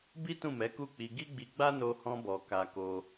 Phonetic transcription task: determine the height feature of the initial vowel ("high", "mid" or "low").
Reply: high